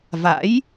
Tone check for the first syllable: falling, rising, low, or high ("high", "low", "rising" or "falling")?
rising